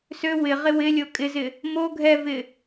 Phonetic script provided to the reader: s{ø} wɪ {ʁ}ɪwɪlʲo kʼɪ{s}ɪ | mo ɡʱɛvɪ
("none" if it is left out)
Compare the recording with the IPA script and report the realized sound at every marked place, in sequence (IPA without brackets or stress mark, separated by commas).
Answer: ø, ʁ, z